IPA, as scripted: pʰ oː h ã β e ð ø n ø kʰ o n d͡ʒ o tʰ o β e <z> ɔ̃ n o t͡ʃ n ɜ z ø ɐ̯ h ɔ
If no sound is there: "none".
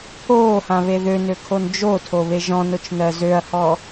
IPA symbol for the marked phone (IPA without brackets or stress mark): ʒ